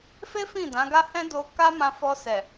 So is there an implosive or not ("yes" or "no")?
no